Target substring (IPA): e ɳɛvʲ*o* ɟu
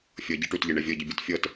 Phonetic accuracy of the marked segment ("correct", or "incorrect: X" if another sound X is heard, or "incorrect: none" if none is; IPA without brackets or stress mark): incorrect: ɤ